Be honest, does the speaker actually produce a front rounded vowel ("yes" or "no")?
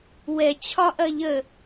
no